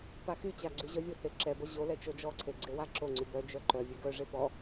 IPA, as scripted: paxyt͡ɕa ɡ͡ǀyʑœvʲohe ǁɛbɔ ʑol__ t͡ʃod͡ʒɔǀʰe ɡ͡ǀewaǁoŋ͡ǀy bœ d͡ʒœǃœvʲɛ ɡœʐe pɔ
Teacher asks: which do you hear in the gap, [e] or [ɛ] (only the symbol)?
ɛ